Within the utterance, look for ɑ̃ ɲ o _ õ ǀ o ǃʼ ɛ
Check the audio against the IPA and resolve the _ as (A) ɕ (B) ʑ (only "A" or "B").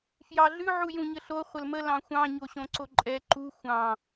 A